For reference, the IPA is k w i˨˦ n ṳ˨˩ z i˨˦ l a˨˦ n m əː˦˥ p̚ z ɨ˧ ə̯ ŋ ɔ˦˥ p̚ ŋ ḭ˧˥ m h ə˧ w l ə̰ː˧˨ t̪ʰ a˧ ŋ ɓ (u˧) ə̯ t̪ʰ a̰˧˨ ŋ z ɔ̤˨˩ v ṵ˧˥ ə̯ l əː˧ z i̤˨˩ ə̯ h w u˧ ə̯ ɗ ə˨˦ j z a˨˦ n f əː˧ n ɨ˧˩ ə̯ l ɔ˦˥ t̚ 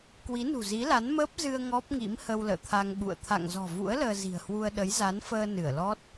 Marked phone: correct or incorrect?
incorrect